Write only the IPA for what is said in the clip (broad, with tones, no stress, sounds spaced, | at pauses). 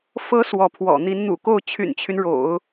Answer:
f ɤ˧˥ s w ɔ˧˥ pʰ w ɔ̰˨˩ n̪ i˧˥ n n̪ ṵ˨˩ k o˥˩ ʊ̯ t͡ɕʰ y̰˨˩ n t͡ɕʰ y˦ n ɻ o̰˨˩˦ ʊ̯